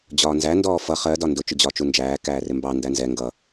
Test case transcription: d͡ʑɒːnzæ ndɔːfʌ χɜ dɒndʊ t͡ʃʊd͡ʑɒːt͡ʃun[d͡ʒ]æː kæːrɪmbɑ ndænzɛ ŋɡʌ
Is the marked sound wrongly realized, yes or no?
no